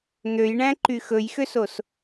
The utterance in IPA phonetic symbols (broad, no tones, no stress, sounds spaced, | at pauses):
n̪ ø j ɳ æ̃ ǃ y x ɵ j x ø s o s